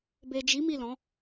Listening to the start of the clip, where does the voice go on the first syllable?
low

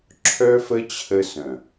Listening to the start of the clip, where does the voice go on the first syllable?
high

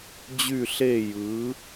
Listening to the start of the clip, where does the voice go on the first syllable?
falling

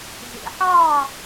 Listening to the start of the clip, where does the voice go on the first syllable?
low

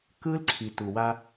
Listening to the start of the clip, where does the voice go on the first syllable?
high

